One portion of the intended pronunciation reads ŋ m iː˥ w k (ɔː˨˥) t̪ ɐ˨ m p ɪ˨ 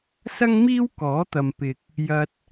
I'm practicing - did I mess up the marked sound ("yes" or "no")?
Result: no